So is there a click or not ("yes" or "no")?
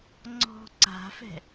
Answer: yes